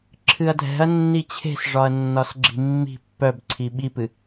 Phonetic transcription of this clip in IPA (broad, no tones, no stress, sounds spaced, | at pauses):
ǁʰ ɨ ɐ̯ dʱ ɛ̤ ɐ̯ nː i t͡ɕʰ e̤ s ʐ ɒ ɐ̯ nː ɒ s ɡ͡ǁ i̤ mː i̤ pː œ b ǀʰ i ɓ i p ɨ